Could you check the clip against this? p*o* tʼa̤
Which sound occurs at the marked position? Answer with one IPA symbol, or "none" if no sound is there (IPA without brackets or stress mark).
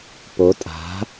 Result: o